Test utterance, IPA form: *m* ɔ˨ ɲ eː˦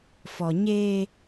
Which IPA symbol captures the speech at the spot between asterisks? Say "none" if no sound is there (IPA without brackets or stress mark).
f